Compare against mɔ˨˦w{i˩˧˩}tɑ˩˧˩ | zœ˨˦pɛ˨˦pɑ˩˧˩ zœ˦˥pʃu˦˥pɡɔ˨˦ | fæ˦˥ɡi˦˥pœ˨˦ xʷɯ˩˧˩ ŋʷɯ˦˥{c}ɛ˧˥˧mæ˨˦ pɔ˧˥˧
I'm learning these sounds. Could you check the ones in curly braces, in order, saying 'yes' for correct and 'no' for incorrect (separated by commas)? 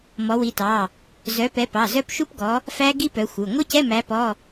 no, yes